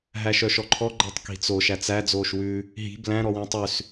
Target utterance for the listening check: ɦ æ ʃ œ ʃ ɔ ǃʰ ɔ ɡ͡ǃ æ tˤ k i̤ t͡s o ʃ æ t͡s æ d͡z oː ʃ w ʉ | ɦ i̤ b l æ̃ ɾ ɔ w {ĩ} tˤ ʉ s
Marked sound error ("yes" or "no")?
no